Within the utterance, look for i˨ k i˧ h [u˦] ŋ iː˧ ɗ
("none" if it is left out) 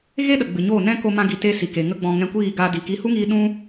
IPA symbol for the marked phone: u˦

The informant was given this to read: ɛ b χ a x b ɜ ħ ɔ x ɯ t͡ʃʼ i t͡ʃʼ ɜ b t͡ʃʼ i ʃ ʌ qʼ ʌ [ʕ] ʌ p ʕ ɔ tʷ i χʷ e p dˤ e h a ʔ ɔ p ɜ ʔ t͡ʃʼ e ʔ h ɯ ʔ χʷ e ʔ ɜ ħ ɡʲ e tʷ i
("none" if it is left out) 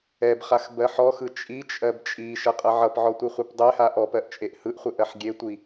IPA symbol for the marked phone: ʕ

